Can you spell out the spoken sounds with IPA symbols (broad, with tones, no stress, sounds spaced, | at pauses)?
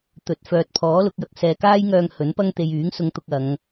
t̪ ɵ˨˥ t̚ f œː˨ t̚ pʰ ɔː˨˥ l ʊ˨˥ k̚ j ɐ˨˥ k̚ s ɛː˧ k aː˥ j ŋ œː˧ ŋ h ɵ˨˥ n p ɐ˥ ŋ t̪ e˧ j yː˨˥ ŋ s ʊ˧ ŋ t̪ ʊ˧ k̚ ɐ˨˧ ŋ